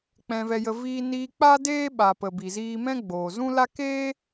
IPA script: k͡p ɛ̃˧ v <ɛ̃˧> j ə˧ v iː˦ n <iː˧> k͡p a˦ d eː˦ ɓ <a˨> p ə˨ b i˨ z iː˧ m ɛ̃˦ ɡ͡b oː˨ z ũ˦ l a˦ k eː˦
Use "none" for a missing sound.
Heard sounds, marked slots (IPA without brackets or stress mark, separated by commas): ɛ˧, iː˧, a˨